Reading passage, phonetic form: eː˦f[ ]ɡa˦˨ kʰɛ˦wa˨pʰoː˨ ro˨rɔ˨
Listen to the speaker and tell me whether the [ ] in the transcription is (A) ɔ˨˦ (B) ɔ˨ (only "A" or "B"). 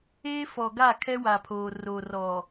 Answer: B